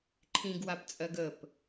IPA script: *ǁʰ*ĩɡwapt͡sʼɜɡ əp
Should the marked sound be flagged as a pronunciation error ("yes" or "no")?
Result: yes